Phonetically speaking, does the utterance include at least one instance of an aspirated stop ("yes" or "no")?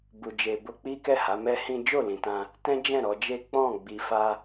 no